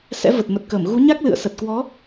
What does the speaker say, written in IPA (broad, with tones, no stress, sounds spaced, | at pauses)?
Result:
s ɛ̰˧˥ v ə˨˩ t̚ m ə˨˩ t̚ k əː˧˩ m ɣ u˨˦ ɲ a˦˥ k̚ l ɨ̰˧˨ ə̯ s ə˨˩ t̚ k w ɔ˨˦